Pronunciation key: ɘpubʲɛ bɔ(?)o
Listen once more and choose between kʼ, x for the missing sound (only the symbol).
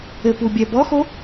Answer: x